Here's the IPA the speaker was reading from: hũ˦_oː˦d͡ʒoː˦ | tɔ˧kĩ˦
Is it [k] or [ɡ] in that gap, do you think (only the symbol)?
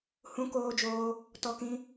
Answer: k